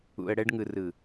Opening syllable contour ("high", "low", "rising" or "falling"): low